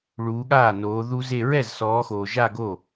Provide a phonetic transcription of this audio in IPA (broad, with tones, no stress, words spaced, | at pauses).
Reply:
ɭuː˨˦ɠaː˥˩ noː˨˦ðu˦˥ze˥˧ ɹɛ˥˩zsɔː˨˦xoː˨ ʒa˥˧ɡo˥˩